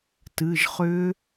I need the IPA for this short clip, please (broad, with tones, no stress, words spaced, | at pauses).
tɨ˩˧˩ʒχʏ˦˥